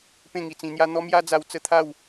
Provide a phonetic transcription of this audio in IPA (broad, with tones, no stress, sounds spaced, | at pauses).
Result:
p ẽ˥˧ ŋ i˧ t͡s ĩ˧ n̪ j a˦ n̪ ɔ˦ m j a˦ d͡z a˧ w t͡s ə˥˧ t̪ʰ a˥˧ w